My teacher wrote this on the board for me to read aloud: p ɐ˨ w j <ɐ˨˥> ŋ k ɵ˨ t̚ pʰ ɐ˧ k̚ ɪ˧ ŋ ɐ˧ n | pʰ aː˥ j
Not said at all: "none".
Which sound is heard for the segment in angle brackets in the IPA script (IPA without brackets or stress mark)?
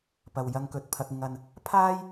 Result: ɐ˧